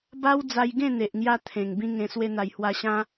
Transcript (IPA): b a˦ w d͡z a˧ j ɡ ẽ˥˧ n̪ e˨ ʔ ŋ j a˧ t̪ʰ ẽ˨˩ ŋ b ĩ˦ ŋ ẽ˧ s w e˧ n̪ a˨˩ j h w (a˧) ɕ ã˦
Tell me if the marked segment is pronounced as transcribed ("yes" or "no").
yes